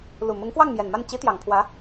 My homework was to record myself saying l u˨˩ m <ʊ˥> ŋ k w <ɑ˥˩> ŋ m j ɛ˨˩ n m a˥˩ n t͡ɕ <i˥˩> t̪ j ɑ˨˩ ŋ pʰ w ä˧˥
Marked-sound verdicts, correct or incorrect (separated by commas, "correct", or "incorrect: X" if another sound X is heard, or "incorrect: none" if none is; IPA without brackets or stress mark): incorrect: ʊ˧˥, correct, incorrect: i˧˥